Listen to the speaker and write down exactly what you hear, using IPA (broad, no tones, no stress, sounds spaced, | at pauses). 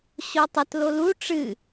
ɕ o tˤ ə t l o l u ʈ͡ʂ ɨ